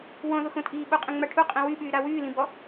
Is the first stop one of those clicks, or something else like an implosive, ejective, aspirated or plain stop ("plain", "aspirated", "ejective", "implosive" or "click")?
ejective